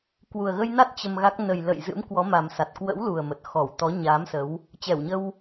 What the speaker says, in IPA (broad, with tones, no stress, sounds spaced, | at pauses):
k w u˨˩ ə̯ ɣ ə˧ j n a˦˥ t̚ t͡ɕ ə˧ m ɣ a˦˥ k̚ n ə˨˩ j l ə̰˧˨ j z ɨ̰˧˥ m k w ɔ˨˦ m a˨˩ m s a˨˩ t̚ k w ə̰˧˥ w l u˨˩ ə̯ m ə˨˩ t̚ x ɔ˧˩ w t̪ ɔ˨˦ ɲ aː˨˦ m s ə˨˦ w | t͡ɕ ɛ˧˩ w ɲ ə˧ w